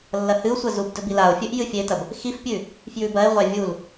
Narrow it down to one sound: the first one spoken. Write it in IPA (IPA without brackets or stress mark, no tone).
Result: lː